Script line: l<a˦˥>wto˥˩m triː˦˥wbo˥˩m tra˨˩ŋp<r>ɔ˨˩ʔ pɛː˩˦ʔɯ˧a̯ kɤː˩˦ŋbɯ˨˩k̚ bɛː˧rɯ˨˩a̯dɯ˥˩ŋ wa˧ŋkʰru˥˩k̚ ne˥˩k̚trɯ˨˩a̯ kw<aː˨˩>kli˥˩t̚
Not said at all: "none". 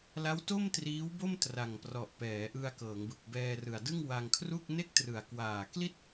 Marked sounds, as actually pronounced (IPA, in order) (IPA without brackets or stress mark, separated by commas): a˦˥, r, aː˨˩